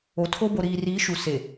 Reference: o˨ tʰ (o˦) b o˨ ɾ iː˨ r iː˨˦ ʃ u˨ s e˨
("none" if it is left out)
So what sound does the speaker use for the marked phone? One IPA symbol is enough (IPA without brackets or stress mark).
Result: o˦